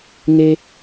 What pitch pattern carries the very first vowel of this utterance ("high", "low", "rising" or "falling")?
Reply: high